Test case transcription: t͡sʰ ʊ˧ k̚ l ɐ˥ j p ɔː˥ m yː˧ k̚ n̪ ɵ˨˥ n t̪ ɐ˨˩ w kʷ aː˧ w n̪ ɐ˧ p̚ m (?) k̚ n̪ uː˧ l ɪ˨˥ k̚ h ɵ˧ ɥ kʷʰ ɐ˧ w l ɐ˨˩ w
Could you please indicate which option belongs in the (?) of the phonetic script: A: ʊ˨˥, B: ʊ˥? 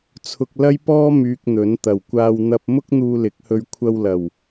B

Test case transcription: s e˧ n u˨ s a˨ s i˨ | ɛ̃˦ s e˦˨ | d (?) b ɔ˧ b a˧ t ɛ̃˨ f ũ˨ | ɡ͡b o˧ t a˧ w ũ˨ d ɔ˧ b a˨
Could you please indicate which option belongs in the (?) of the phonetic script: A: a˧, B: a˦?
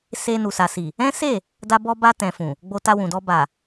A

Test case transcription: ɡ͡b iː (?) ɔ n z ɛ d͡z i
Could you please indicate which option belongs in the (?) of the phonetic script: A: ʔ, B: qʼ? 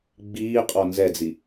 B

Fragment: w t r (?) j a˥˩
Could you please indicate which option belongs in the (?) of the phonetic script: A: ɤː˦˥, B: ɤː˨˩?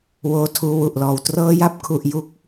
A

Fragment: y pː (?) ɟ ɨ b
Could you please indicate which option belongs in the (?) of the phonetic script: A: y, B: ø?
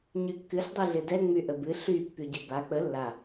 A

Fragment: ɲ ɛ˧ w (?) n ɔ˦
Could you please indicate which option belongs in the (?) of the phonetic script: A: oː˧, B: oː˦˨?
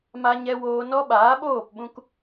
A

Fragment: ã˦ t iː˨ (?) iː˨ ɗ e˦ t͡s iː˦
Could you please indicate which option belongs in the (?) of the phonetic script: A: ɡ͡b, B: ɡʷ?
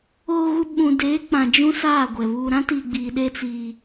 A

